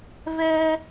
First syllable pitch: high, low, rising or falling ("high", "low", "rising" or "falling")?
high